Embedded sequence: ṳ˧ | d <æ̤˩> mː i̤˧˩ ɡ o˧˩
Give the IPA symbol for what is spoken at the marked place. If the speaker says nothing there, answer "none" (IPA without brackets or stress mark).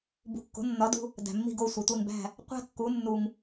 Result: æ̤˩